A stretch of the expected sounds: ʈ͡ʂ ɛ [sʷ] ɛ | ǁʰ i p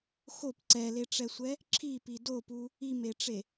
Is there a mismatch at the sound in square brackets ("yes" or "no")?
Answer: no